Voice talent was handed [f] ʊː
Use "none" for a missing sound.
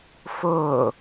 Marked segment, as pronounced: f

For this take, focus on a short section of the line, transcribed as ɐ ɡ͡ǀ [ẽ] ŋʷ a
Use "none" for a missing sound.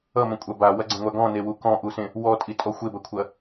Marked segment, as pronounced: ɛ̃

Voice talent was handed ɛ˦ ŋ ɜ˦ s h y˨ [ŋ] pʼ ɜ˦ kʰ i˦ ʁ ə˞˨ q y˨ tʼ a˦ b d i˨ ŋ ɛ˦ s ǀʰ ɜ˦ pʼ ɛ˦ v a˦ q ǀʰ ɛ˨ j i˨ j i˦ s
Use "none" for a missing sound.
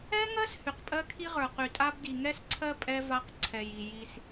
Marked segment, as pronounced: q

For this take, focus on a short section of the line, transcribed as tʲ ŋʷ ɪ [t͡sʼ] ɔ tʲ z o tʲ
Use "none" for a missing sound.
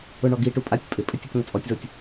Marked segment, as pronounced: t͡sʼ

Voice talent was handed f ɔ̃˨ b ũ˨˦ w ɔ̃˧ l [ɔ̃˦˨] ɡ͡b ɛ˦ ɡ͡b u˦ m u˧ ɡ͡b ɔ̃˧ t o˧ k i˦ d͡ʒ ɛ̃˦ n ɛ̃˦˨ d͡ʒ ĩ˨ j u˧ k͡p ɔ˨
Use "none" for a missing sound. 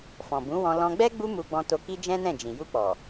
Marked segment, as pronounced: ɔ̃˧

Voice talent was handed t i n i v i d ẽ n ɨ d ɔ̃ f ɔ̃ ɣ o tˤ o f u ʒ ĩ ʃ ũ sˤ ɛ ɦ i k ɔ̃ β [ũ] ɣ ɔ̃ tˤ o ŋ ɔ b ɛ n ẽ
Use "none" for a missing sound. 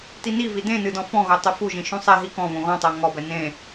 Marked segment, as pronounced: õ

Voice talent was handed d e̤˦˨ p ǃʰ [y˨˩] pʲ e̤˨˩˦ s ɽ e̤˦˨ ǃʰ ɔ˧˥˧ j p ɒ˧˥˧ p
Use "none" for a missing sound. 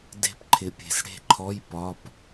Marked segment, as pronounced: ɪ˨˩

